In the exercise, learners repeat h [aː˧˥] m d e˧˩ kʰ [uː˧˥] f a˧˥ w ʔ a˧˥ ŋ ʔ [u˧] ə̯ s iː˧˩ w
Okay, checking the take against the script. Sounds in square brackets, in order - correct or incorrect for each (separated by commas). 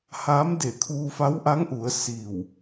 correct, incorrect, incorrect